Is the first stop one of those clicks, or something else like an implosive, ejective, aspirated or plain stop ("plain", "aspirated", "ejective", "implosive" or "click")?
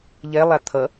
aspirated